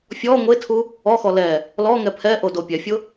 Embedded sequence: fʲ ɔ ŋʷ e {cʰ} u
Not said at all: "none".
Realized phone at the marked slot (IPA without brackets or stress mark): tʰ